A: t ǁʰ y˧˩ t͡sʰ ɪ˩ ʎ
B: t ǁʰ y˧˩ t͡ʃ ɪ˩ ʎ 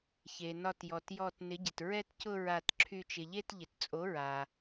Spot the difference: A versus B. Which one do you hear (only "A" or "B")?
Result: B